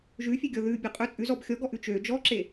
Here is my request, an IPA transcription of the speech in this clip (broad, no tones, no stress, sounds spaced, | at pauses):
ʒ ʉ fʲ e ɡʲ ɔ ð ʉ bʲ ø qʼ ø t͡sʼ ʉ z ɔ b xʲ ɔ ɡ ɔ ʔ ʉ t͡ʃ ø d͡ʒ ɔ ǁ e